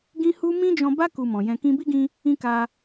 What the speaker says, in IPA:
ɡĩ˦hu˦ mĩ˦d͡ʒɔ̃˧ba˦ ku˧mɔ̃˨jɛ̃˧ kĩ˧bi˦ɡĩ˧ | ĩ˦ka˧

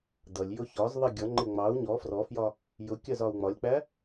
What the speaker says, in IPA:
dʌlʲ jʊçɒzðˤi ɡʲʌŋ͡ǃɪ ŋ͡mɑu̯ ɲɔ frɔfjɒ | jʊ kʲɜzɒu̯ŋ͡mɒlʲk͡pæ

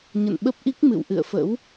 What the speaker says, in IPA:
ɲə̰˧˨nɓə˦˥p̚ʔi˦˥k̚ mɨ̰˧˨wʔɨ̰˧˨ə̯fə̰˧˥w

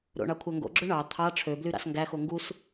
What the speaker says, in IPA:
ɾo̰ɳɑ kʷʰæŋɡo̰ɡ͡ǁø ɳɑ t̪ʰɑ ʈ͡ʂʰøbly ɾɑ̰sŋɡæxo ŋɡus

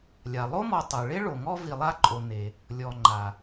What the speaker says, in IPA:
lʲa˩lˠo˥mɔ˨ tˤe˩ ɭe˥ɭo˩ŋɔ˦ vi˨lˠa˦ǃʼo˨ ne˩ | lʲɔ˩ ŋ͡ǃa˩

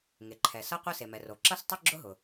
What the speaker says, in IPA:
ŋe˩ǃʰɛ˩ sʌ˥qʷə˥ se˩mɛ˩ro˩ ǁʌ˥stˤʊ˥ ɡ͡ǁʊ˥ɦʊ˩

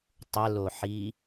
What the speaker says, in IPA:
tˤəloħi

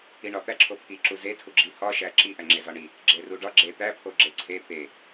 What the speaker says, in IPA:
iɳɒ t̪æǁʰo pʰiǁu zetʰuɡ͡ǁi hɒʃæ ǁiʔæŋ͡ǁe zɒɳi | ɡ͡ǁeruɖɒ ɡ͡ǁe t̪æ pʰoɡ͡ǁeǀʰe t̪e

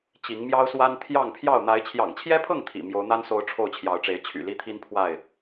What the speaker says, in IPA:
t͡ɕi˨˦ŋmjɑ˦ʊ̯swa˦n t̪ʰjɑ˥˨ŋ pʰjɑ˥˨ʊ̯ n̪a˨˦ɪ̯t͡ɕʰjɑ̰˨˩ŋt͡ɕʰjɛ˦pʰɤ˥˨ŋ t̪ʰḭ˨˩ mjo˨˦ʊ̯n̪a˦nso˨˦ʊ̯ ʈ͡ʂʰo˥˨ʊ̯t͡ɕʰjɑ˨˦ʊ̯ʈ͡ʂe˨˦ɪ̯ t͡ɕʰy̰˨˩li˦t̪ʰi˦npʰwa˥˨ɪ̯

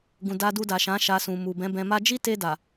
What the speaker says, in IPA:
ɡũ˨ da˧ du˧da˨ʃã˨˦ ʃa˧sũ˨mu˨ bɛ̃˨˦bɛ̃˧ ma˧d͡ʒi˦te˧ da˨

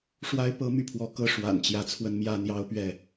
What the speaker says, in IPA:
ʂwa˦ɪ̯ pɤ˦my˥˨pʰwɔ˨˦kɤ˥˨ ʂwa̰˨˩nt͡ɕjä˨˦ t͡sʰwə˦nmjä˦ n̪jɑ˦ʊ̯pɥɛ˥˨

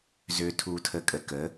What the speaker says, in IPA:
zø˨tʰuː˨tʰə˨kʼə˨ kə˨˦

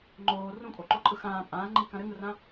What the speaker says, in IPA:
ŋ͡ǃoː rũkʼoǃoǃʼɯ xãː pʼãːŋ͡ǃiːkã ɾɘŋɯrã

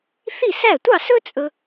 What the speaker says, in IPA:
θi˥˩sæ˥˩ tʷɑ˥˩sɵ˥ t͡sʼɵ˧

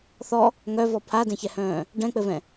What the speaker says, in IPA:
θɔ | ŋœvɔ pʰadɛ̃çɛhœ̃ː | ɖɛ̃k͡pɘvɛ̃

